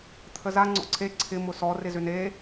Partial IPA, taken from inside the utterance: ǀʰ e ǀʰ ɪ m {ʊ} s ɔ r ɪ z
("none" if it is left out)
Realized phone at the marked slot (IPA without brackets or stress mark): ʊ